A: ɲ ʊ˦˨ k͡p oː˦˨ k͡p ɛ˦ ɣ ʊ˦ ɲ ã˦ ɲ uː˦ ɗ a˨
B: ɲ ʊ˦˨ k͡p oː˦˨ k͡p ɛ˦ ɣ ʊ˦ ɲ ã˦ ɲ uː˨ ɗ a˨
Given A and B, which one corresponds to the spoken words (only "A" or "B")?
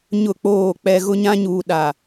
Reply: B